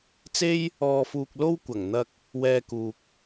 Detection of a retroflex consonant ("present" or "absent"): absent